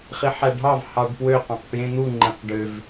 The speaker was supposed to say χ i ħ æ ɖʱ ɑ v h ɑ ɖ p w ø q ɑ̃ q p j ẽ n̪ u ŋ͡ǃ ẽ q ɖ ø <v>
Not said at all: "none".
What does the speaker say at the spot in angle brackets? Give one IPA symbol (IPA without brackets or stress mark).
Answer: v